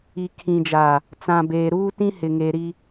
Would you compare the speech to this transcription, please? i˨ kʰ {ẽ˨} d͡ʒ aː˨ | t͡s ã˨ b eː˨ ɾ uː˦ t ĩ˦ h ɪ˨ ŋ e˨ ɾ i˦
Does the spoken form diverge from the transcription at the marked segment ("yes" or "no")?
yes